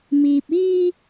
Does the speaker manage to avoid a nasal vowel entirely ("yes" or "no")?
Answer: yes